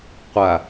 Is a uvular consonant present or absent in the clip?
present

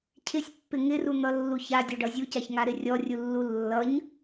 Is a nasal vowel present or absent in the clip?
absent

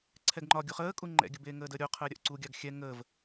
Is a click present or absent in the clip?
present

